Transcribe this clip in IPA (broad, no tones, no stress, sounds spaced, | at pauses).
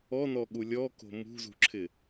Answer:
ɔ n ɔ ɠ u lʲ ɔ k o̤ m ṳ z ṳ ǁʰ ɪ